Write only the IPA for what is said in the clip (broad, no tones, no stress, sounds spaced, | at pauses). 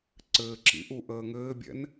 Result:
ǀ ɘː ǁ ḭ ʔ u ʔ əː ŋ ɘː bʲ ɛ̰ n